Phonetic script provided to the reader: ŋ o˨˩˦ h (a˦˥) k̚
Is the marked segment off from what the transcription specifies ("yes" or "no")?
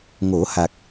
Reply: yes